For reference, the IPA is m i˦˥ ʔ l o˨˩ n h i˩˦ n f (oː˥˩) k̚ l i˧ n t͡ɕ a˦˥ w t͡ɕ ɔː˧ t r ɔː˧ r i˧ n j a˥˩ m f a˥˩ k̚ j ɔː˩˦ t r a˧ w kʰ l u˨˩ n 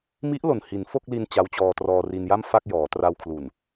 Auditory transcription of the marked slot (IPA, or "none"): o˥˩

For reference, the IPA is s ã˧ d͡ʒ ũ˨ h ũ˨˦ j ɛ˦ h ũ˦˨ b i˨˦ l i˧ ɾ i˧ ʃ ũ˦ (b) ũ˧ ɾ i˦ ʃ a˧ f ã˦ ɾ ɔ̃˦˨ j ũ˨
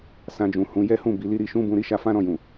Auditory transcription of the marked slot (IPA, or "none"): b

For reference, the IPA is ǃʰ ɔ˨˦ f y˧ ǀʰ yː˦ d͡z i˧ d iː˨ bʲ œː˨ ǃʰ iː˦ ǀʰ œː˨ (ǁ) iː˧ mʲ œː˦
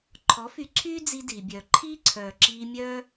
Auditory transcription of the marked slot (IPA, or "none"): ǁ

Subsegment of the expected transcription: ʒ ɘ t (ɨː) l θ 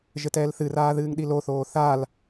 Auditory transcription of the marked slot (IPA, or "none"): ɛː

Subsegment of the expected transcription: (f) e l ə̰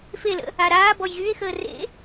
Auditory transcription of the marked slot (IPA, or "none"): f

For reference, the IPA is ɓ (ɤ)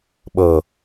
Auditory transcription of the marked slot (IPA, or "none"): ɤ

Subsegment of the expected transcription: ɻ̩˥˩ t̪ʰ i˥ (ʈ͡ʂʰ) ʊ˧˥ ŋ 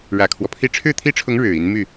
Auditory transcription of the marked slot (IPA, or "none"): ʈ͡ʂʰ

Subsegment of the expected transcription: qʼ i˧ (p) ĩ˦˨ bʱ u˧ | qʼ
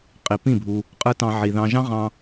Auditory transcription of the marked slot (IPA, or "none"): p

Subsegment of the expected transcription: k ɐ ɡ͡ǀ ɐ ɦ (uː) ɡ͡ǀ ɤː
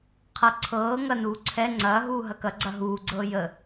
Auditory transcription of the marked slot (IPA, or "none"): uː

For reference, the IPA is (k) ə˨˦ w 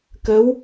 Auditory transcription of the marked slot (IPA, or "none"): k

